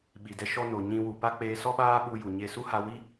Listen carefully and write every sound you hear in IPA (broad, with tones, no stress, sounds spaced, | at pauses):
ɓ i˨ d ɛ˧ ʃ ɔ˧ n o˨ ɲ ĩ˧ w u˨ p a˦ k͡p eː˧ s ɔ˦ ɓ aː˦ ɓ u˧ j u˨ ɲ e˧ s u˦ h a˧ w i˦